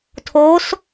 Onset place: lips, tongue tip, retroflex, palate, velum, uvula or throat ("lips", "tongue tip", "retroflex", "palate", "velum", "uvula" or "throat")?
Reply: tongue tip